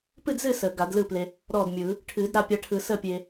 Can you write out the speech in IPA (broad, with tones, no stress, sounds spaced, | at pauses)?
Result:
p ɨ˥˨ d z ɨ˥˨ s əː˨˩˦ ɡ a˨˩˦ d l ɯ˥˨ p l e˧ | ɾ ɔː˥˨ d mʲ ɯː˨˩˦ | ʈʰ ɨː˨˩˦ d ɾ a˥˨ pʲ a˧ ʈʰ ɯ˨˩˦ s əː˥˨ pʲ eː˧